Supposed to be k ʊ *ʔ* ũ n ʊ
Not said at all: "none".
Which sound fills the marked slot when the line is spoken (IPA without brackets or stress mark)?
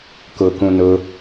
k